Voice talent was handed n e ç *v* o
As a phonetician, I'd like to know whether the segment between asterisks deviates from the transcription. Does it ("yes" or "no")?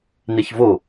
no